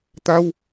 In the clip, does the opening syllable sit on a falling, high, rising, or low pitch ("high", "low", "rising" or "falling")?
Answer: high